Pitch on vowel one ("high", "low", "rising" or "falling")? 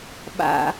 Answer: high